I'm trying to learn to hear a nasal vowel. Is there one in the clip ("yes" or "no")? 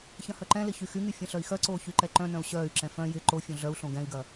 yes